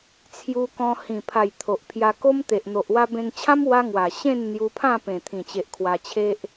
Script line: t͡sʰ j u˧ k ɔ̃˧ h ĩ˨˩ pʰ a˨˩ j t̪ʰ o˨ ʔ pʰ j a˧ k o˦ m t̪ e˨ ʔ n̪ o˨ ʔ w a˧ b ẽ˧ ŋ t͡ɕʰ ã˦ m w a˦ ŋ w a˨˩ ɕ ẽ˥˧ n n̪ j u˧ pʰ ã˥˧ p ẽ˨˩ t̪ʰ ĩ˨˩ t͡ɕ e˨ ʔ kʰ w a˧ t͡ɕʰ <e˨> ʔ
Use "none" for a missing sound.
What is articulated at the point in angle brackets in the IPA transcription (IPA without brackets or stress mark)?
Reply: e˦